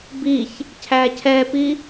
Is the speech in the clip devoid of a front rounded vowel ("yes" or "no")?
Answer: yes